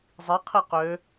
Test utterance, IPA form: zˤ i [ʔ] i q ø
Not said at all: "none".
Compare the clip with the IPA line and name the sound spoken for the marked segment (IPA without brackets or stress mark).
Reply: qʰ